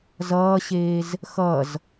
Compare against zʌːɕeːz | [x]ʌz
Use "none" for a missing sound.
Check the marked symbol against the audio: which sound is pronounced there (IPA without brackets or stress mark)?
x